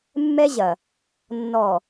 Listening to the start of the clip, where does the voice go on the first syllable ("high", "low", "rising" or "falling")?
high